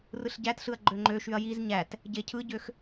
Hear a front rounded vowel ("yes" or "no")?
yes